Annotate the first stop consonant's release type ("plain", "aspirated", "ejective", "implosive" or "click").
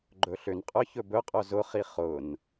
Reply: click